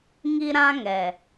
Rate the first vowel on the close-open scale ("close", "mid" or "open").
close